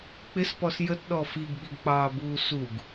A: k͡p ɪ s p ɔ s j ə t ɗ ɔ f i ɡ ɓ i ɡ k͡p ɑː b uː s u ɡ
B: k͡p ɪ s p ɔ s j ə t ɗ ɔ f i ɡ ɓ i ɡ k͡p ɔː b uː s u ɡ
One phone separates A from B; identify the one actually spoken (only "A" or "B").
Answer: A